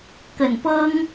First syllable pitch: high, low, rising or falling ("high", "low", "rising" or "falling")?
low